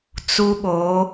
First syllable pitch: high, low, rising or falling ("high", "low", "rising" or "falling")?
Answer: high